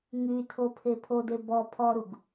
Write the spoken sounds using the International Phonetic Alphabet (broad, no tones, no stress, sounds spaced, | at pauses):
ŋ y tʰ o pʰ e pʰ o d e b ɔ pʰ ɔ ɾ u ɡ